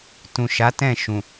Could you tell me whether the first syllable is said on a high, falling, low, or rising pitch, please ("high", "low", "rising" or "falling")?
low